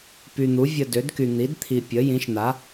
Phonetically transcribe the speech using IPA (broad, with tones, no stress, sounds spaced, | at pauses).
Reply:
p y˨ n̪ u˩˥ vʲ ə˨ d ø˩˥ d k y˨ n̪ i˩˥ d t̪ʰ i˨ pʲ ə˩˥ j ĩ˩˥ ʃ n̪ a˩˥